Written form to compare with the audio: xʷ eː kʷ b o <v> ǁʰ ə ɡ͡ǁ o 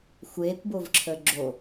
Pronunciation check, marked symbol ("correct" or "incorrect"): correct